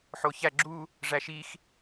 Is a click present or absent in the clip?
present